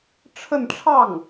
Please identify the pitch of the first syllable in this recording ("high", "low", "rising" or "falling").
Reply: falling